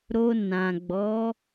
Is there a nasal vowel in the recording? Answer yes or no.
yes